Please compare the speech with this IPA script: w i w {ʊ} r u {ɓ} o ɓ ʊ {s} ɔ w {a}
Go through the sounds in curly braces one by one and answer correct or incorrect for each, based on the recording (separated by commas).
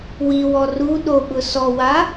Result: incorrect, incorrect, correct, correct